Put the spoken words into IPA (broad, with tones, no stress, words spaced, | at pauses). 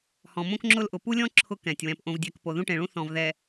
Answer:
hɔ̃˨mõ˦kŋ͡ǁʊ˦lʔʊ˨ pu˦lʲɔ̃˦ ǁʰʊ˦kɛ̃˨tʲ wɛ̃˨pʔõ˨vdʲɛ˨k po˨ðũ˦ʈẽ˨ɭũ˦ θɔ̃˨v ðɛ˨